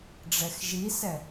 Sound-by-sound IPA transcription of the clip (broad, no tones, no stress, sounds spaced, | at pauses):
ɖ͡ʐ ɛ x ʒ i s ɛ